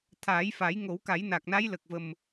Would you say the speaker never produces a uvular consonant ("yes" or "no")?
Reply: yes